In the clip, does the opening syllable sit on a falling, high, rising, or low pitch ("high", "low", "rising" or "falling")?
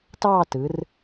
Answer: falling